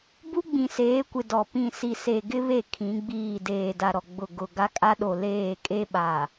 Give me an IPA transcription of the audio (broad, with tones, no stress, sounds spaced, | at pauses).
b u˦ ɡ͡b ĩ˨ s eː˨˦ kʷ ɪ˨ d ɔ˨ p ĩ˦˨ s i˨ s e˨ ɡ ɪ˦ β e˦˨ kʰ ĩ˨˦ ɡ͡b iː˦˨ d eː˨ d a˨ ɾ ɔ˨ ɡ͡b ʊ˦˨ ɡ ʊ˦˨ ɡ a˦ kʼ a˦ ɗ o˨ l eː˦˨ kʼ e˦ ɓ a˨